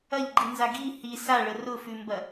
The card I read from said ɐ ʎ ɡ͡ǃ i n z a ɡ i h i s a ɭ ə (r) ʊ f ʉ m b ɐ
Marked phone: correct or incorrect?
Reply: correct